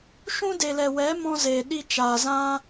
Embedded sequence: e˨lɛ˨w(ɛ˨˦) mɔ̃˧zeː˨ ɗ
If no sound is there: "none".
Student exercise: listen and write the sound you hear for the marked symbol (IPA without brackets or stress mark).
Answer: ɛ˨˦